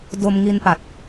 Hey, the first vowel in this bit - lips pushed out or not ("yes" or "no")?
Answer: yes